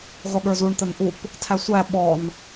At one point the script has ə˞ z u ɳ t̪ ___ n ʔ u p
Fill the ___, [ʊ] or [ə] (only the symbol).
ə